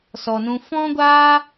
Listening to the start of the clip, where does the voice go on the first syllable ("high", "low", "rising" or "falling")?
low